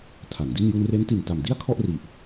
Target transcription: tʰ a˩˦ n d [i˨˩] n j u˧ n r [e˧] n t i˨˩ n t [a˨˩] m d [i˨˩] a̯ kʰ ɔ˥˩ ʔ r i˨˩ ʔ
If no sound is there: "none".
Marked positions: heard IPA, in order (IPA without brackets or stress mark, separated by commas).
i˥˩, e˦˥, a˨˩, i˥˩